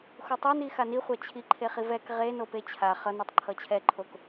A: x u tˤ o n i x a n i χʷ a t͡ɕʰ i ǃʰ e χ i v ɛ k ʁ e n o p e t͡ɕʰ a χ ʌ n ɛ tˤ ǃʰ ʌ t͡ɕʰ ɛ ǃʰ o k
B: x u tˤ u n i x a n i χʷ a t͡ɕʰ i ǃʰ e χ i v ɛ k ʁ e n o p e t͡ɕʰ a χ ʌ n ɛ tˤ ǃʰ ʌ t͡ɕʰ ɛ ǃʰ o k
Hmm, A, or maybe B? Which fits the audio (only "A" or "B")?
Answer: A